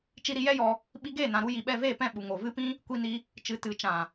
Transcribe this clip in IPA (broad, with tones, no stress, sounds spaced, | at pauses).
t͡ʃ i˧ ɾ i˧ j ɛ˦ j ɔ˧ | ɓ i˧ ɡ eː˦˨ n ã˨ ɾ u˧ j i˨ ɓ ɛ˦˨ v eː˦˨ p ɛ̃˦˨ ɓ u˨ ŋ o˨ v ɨ˦ p ĩ˦ | kʷ i˧ n i˧ | t͡ʃ ɨ˨ t ɨ˨ t͡ʃ ã˨